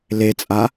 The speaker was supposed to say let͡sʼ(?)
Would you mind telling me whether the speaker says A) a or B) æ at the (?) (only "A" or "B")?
A